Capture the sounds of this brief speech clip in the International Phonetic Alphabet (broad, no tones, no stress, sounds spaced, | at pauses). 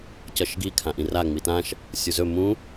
c ʌ ʃ ɡ i kʰ ã ʔ ĩ r a ŋ͡m i t ã ʃ | sʲ u z ɵ m ũ